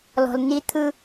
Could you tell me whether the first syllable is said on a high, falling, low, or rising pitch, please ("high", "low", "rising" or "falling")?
low